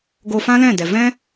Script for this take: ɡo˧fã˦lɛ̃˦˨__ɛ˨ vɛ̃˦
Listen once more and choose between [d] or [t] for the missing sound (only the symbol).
d